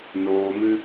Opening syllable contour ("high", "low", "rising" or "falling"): low